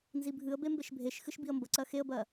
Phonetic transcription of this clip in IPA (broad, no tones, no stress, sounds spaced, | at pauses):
n z i bʱ ɨ ə̯ b e m b e ʃ bʱ e ʃ x ɨ ʃ b i ə̯ m b ə ǀ ɜ x e ə̯ b ɜ